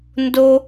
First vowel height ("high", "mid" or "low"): mid